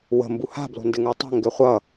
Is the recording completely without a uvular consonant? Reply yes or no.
no